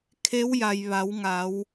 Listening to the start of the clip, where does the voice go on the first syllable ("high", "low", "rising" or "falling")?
rising